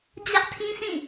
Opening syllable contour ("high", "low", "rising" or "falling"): high